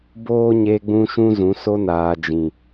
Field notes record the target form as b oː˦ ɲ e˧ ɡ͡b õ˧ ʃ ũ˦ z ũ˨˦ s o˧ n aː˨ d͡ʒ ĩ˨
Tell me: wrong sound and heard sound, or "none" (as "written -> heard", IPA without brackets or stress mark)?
õ˧ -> ũ˧